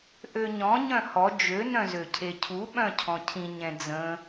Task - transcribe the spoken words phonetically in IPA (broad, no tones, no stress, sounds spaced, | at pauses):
ʔ ø ɲ ɔ̃ ɲ œ̃ h ɔ d͡ʒ ø n œ̃ z ø cʰ e cʰ u ɓ œ̃ cʰ ɔ̃ cʰ ĩ ɲ ɛ̃ d͡z ə̃